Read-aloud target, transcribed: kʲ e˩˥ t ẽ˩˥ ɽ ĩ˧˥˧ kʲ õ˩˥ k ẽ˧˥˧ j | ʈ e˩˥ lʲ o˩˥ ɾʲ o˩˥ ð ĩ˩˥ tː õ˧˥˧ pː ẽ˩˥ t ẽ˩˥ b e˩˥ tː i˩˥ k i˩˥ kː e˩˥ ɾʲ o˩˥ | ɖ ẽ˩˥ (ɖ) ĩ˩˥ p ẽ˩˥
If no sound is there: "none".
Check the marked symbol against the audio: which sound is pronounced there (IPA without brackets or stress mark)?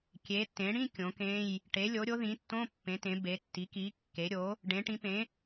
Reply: ʈ